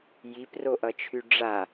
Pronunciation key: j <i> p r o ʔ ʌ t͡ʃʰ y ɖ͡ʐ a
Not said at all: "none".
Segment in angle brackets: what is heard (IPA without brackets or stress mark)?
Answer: i